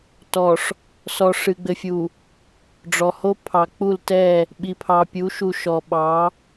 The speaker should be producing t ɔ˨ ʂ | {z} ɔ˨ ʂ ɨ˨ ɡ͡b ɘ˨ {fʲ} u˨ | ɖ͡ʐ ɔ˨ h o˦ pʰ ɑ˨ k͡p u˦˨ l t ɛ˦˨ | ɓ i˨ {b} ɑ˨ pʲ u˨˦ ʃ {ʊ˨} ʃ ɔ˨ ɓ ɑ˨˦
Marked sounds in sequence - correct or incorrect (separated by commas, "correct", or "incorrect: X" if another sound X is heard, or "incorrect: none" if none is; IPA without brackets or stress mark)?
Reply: incorrect: s, correct, incorrect: pʰ, incorrect: u˨